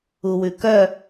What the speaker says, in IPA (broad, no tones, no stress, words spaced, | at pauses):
uwʉkœ